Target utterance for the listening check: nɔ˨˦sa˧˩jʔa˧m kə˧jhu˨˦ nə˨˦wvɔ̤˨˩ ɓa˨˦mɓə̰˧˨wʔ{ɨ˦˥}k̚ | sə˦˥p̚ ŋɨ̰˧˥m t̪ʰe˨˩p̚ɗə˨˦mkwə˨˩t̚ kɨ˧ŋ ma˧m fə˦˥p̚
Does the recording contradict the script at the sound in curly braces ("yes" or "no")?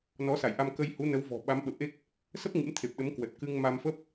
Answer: yes